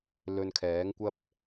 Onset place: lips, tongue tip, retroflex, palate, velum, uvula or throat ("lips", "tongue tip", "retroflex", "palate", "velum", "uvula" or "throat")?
tongue tip